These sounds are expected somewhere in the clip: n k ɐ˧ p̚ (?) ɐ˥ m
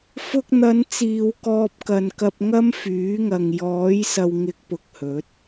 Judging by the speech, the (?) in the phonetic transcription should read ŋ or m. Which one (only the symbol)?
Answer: ŋ